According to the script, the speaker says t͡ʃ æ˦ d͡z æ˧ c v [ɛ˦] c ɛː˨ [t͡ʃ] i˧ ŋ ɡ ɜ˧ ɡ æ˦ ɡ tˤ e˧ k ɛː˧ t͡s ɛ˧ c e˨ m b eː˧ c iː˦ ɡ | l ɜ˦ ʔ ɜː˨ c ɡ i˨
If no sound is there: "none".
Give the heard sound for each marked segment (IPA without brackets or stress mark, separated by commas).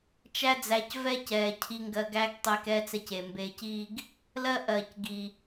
ɛ˦, cʰ